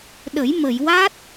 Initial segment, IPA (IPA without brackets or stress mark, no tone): ɗ